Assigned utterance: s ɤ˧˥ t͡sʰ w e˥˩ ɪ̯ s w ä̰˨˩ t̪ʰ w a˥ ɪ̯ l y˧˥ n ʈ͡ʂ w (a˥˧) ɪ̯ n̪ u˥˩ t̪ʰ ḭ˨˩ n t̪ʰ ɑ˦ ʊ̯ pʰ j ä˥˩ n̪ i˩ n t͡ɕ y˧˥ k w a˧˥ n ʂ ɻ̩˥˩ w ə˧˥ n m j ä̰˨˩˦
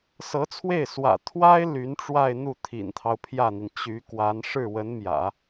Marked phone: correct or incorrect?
correct